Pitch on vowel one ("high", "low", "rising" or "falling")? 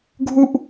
high